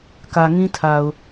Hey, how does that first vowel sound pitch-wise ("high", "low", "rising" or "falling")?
low